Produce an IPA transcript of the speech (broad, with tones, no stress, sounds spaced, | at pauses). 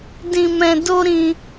d ĩ˨ m ɛ̃˨ d o˧ ɾ ĩ˧